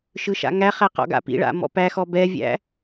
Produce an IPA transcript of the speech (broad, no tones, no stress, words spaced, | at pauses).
ʃɯʃa̰ŋæχæ qɔ̰ɡa̰pḭɭa̰ mɔ̰pæxɔ bɛvʲæ̰